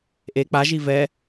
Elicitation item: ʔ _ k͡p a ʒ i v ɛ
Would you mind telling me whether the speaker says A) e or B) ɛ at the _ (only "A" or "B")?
A